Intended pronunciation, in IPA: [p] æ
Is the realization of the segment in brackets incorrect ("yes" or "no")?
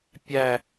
yes